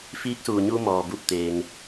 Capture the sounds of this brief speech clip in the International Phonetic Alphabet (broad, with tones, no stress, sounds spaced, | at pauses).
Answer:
f iː˧˥ k̚ s uː˩ ɲ u˧ m ɔː˩ b u˧˩ p̚ t̪ eː˩ ŋ